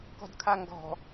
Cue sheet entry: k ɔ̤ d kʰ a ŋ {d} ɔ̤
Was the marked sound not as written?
yes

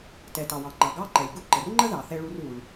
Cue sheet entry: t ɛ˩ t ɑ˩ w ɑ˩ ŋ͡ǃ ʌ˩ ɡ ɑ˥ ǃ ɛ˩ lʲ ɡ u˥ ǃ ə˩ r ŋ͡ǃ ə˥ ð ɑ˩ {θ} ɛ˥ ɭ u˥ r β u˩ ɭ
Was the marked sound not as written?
no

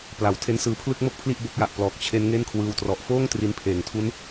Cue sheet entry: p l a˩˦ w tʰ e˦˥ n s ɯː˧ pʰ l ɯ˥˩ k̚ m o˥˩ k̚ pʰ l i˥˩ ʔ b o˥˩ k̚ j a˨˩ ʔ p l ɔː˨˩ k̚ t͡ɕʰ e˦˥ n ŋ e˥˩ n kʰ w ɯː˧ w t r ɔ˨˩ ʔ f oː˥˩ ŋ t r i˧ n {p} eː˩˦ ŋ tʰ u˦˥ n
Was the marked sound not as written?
yes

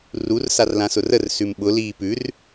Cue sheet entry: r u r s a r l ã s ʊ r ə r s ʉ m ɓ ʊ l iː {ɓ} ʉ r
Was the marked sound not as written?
yes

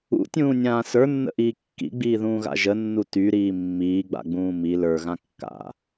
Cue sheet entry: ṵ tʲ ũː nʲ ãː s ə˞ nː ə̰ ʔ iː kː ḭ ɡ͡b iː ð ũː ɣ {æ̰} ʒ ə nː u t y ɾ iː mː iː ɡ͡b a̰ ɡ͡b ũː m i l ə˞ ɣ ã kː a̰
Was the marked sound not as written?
yes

